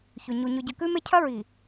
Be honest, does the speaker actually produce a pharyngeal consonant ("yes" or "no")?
no